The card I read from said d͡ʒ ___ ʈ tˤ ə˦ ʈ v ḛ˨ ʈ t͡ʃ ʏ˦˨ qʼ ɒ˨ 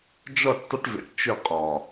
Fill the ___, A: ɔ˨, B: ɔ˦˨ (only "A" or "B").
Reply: B